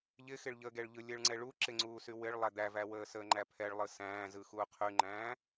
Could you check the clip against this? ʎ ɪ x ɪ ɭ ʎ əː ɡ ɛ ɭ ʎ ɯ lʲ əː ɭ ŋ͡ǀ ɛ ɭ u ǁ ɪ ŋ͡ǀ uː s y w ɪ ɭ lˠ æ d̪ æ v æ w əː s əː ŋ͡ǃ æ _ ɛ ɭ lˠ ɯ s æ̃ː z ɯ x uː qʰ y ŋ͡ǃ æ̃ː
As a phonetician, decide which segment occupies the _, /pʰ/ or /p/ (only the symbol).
pʰ